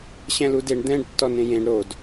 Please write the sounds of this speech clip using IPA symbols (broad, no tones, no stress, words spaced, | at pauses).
ɕɛ̃ludeɳ d̪ɛ̃ɖ tːɔnẽjẽɳ ɾod